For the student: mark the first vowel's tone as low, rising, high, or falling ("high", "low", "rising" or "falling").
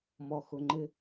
low